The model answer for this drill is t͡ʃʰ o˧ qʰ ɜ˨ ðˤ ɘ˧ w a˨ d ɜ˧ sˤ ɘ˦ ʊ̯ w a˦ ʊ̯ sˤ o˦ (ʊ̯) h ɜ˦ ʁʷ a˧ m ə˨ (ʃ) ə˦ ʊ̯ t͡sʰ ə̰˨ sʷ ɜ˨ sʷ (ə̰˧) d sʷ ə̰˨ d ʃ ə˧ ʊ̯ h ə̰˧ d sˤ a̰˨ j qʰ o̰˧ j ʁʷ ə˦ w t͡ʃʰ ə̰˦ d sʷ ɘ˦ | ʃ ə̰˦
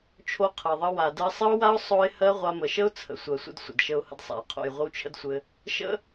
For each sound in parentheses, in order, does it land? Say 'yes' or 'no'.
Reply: no, yes, yes

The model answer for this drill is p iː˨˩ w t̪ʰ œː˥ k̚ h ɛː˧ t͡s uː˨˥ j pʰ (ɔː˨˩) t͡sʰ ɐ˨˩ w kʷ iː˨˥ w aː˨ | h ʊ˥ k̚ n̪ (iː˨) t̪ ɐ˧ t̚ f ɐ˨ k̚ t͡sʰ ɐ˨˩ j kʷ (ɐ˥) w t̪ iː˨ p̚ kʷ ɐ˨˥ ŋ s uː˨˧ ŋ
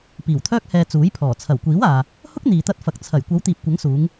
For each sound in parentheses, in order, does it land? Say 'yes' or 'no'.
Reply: yes, yes, no

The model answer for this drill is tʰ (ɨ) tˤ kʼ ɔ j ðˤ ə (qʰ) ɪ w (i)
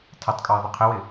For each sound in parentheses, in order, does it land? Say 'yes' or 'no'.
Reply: no, yes, no

